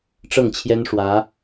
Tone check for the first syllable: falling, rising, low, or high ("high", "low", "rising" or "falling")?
falling